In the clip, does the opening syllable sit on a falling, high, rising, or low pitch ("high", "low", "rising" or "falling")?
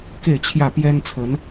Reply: falling